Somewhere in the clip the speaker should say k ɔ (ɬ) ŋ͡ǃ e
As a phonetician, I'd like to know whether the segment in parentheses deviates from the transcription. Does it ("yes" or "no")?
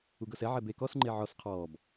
yes